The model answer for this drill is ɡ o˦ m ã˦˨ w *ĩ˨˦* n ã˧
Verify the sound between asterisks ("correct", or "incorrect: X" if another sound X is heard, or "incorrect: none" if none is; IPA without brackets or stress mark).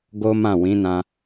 correct